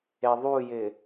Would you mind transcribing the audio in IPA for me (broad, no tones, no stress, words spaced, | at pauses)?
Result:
eðˤujɪ